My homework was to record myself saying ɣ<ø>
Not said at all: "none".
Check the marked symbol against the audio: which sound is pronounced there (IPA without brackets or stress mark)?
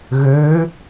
ø